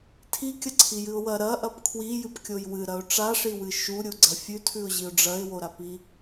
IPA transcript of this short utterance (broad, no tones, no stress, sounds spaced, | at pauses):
tʰ i kʲ ɐ ǀʰ i j ɨ ʊ̯ w ɐ ɾ ɐ ʔ ɐ p kʰ w i j ɨ p kʲ o j w ɨ ɾ ɐ ʊ̯ ʈ͡ʂ a ʂ i w ɨ ʃ u ɾʲ u ɡ͡ǀ ɐ fʲ ʉ tʰ ʉ ʊ̯ ʑ i ʊ̯ ɖ͡ʐ ɐ ɪ̯ w o ɾ a p i